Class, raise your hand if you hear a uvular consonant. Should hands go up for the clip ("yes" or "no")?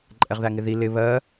yes